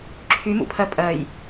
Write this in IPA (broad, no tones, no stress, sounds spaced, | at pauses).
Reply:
ǁʰ y m ṵ pʰ ɜ pʼ ɜ j